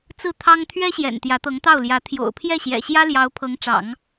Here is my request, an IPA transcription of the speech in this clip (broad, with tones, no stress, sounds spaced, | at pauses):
t͡s ɹ̩˥˩ t̪ʰ ɑ˥ ŋ t̪ʰ ɥ ɛ˥ ɕ j ɛ̰˨˩ n t̪ j ä˧˥ t̪ ɤ˧˥ ŋ t̪ ɑ˥˩ ʊ̯ l j ä˧˥ t̪ʰ j o̰˨˩ ʊ̯ pʰ j ɛ˥˩ ɕ j ɛ̰˨˩ ɕ j ä˥ l j ɑ˧˥ ʊ̯ pʰ ɤ˧˥ ŋ ʈ͡ʂ ɑ̰˨˩˦ ŋ